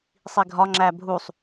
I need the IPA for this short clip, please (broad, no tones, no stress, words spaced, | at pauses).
sˤiɡʱɒ ŋ͡ǁæbʱusˤ